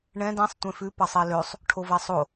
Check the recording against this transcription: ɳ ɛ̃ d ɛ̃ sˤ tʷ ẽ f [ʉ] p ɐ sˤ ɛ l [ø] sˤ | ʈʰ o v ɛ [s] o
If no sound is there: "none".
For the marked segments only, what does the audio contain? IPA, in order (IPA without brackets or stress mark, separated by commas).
ʉ, ø, sˤ